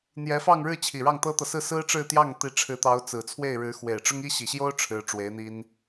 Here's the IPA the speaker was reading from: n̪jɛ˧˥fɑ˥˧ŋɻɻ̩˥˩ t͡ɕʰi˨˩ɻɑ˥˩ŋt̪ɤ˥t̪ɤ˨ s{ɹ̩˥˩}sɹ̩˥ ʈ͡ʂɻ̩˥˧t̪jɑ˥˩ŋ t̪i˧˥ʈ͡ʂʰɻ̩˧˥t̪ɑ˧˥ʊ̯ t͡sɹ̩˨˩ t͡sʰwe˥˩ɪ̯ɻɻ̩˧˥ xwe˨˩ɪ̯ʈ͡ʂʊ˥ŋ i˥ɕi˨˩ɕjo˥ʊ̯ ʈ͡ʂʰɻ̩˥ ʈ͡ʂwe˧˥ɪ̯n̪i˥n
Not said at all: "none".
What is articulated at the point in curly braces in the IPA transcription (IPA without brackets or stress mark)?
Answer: ɹ̩˥˩